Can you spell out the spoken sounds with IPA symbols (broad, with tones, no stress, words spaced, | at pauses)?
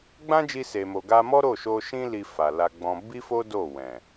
ɡ͡bã˦d͡ʒi˧se˨mo˨ ɡa˧mɔ˦ ɾo˦˨ʃo˧ʃĩ˦ li˧fa˨la˧ɡ͡bɔ̃˧ bi˦fo˦ do˦˨ wɛ̃˨